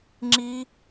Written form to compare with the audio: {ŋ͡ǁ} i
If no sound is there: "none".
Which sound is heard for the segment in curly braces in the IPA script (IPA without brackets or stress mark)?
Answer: ŋ͡ǁ